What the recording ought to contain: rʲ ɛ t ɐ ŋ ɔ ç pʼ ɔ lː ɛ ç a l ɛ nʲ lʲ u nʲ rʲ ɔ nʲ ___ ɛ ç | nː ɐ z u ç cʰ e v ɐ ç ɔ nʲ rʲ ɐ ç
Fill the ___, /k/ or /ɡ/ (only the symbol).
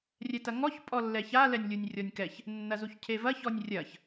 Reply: k